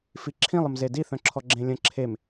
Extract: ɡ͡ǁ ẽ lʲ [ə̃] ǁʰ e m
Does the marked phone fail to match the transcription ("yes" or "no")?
no